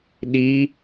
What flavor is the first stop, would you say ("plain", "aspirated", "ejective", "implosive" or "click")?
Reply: implosive